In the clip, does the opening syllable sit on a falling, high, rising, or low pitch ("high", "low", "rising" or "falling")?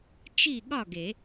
falling